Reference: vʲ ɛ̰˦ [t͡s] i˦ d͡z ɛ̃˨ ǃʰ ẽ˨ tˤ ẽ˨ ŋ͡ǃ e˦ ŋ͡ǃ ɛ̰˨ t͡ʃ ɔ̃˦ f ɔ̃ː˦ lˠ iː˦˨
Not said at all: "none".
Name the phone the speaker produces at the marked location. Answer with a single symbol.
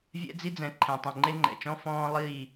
d͡z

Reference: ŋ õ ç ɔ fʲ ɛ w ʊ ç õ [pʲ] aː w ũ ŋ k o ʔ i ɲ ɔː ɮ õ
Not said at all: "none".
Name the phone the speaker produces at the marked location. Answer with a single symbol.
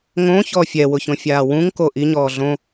fʲ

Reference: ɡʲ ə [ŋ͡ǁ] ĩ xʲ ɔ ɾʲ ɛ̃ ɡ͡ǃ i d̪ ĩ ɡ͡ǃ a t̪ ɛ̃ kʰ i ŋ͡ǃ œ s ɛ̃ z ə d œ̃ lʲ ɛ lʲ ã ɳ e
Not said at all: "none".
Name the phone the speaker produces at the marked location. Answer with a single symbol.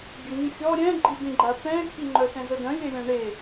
ŋ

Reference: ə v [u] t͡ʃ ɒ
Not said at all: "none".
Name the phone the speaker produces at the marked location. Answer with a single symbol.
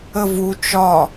u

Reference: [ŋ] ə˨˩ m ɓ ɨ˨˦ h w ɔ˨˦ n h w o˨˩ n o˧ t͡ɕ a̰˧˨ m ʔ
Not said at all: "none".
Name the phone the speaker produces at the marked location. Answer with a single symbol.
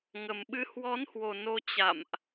ŋ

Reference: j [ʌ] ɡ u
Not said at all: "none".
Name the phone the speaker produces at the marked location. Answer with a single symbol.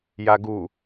a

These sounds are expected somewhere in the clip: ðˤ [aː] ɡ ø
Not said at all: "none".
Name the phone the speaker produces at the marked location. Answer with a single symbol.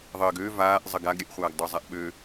əː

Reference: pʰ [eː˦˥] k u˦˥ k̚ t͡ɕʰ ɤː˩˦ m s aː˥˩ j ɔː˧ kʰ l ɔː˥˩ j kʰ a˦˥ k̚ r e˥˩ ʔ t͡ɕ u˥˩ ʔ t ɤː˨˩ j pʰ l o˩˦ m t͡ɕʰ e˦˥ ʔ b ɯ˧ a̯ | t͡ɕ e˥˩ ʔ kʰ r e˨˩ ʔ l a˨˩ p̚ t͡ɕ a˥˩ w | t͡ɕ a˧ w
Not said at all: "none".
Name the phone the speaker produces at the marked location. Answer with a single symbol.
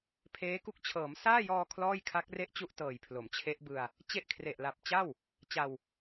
eː˦˥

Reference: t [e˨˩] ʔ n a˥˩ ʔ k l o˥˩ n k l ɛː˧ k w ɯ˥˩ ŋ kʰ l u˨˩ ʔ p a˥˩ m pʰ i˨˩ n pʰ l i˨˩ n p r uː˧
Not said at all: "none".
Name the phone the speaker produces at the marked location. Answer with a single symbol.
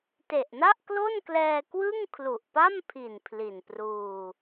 e˨˩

